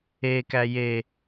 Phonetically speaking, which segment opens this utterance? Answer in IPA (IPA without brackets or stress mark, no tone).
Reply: e